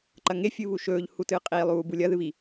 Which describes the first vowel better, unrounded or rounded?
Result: unrounded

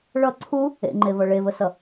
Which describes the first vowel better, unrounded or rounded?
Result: unrounded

